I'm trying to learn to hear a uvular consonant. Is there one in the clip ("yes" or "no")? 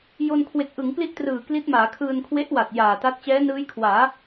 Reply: no